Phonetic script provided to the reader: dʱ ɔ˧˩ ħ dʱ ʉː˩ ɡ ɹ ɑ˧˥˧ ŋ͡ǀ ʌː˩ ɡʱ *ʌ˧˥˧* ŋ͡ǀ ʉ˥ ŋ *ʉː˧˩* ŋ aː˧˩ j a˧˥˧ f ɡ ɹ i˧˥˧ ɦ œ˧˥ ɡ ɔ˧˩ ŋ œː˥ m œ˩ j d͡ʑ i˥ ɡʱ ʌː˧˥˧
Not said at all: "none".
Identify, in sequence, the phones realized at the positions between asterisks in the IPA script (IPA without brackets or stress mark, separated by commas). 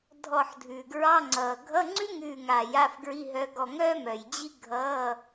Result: ʌ˧˥˧, ʉː˧˩